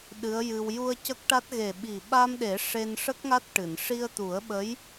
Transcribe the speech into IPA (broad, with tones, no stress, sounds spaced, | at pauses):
ɗ ɨ˧˥ ə̯ j ɨ˧ w j u˧ ə̯ c ə˦˥ k̚ ʈ a˦˥ t̚ ɣ e˨˩ ɓ i˨˩ ɓ a˧ m ɗ e˨˩˦ ʂ e˧ n ʂ ə˦˥ k̚ ŋ a˦˥ t̚ ʈ ɨ˨˩˨ n ʂ i˧ ə̯ t̪ u˨˩˦ ə̯ ɓ ə˧˥ j